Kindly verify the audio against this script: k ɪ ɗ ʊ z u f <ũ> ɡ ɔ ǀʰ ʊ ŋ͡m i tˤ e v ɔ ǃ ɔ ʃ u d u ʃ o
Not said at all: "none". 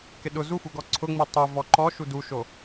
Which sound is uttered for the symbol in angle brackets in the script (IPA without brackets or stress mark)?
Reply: u